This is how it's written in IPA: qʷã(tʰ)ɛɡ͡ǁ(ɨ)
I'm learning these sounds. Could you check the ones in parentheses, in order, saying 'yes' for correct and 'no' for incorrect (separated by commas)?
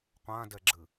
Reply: no, yes